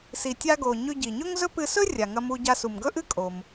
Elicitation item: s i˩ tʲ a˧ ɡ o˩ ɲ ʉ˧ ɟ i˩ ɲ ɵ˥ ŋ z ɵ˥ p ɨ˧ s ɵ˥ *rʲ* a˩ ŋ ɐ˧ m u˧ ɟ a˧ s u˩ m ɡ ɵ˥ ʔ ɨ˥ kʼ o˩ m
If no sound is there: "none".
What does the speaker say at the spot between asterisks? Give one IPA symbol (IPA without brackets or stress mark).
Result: rʲ